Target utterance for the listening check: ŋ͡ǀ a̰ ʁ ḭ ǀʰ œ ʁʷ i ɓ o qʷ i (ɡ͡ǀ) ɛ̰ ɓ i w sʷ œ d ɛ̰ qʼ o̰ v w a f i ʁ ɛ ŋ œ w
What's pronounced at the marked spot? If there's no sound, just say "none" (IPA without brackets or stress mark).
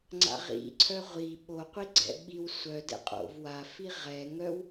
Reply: ɡ͡ǀ